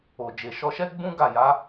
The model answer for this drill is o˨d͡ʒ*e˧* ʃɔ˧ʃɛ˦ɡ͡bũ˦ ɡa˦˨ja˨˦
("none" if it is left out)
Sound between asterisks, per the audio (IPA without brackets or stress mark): e˨